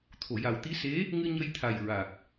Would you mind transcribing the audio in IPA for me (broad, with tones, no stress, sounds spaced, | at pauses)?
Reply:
t̪ʰ o˨˩˨ j a˨˩ w t̪ i˧˥ s e˧˥ | ŋ ɨ˧ ɲ ə˧ j t̪ʰ a˨˩ j ɹ a˨˩ k̚